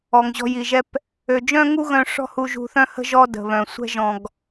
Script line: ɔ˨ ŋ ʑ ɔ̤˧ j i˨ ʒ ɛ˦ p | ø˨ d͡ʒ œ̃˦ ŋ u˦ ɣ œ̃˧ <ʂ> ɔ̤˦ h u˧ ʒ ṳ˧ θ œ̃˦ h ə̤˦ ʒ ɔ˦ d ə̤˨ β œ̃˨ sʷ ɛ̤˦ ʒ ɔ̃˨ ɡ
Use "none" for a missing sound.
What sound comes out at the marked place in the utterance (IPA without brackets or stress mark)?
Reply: ʂ